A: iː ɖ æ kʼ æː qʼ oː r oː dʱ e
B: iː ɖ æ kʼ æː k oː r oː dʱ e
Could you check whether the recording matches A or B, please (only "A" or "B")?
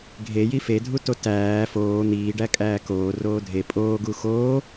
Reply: B